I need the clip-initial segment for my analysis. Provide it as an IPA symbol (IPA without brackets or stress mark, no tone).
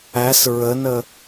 æ